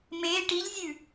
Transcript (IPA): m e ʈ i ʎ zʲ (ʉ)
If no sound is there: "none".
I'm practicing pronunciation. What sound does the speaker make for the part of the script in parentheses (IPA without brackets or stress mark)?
ʉ